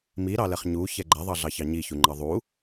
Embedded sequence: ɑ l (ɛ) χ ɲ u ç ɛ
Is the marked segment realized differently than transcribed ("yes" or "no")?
no